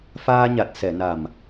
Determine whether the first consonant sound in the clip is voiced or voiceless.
voiceless